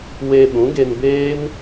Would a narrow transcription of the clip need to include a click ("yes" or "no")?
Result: no